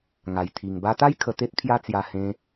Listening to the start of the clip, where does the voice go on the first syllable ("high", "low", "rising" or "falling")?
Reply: low